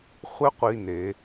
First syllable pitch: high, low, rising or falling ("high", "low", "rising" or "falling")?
high